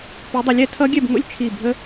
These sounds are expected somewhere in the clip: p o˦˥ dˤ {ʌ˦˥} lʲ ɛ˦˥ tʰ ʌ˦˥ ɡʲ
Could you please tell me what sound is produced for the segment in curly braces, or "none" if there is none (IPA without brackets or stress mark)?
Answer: ʌ˦˥